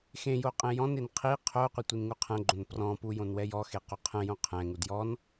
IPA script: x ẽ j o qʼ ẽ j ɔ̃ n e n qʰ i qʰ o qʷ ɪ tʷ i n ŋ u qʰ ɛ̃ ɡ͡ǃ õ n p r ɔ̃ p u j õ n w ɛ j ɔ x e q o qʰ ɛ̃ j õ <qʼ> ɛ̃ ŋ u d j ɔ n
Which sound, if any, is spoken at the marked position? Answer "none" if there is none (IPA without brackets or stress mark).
qʰ